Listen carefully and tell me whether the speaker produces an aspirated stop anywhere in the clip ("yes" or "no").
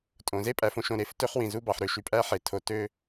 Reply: yes